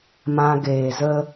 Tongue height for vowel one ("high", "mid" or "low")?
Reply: low